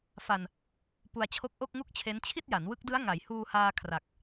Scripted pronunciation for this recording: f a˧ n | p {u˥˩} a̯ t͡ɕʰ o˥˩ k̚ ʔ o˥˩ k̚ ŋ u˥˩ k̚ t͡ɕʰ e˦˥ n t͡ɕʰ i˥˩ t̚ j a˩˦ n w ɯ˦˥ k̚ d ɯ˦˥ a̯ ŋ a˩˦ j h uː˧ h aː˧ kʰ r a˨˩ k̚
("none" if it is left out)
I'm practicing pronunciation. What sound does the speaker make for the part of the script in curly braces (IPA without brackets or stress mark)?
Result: u˧